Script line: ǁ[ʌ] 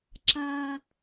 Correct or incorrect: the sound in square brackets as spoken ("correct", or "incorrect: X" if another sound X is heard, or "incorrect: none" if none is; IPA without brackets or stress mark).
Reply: incorrect: a